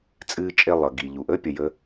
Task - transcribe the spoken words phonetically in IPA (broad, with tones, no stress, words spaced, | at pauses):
t͡sʼɨː˧t͡ʃʼe˧ lˠʌ˩ɡi˩ʎu˩ʔ ə˥ pʲə˩jə˧